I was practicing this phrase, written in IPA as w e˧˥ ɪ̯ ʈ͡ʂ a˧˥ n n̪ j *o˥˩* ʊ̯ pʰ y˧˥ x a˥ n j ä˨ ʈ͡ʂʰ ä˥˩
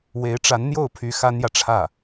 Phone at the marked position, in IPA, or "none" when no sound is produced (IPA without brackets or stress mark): o˥˩